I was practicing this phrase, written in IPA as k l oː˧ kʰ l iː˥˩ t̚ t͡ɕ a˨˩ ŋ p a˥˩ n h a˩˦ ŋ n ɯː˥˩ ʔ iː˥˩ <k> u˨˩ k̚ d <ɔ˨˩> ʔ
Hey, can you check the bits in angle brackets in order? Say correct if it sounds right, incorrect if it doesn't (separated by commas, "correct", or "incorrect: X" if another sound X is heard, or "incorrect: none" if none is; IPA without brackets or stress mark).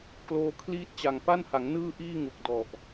incorrect: ŋ, correct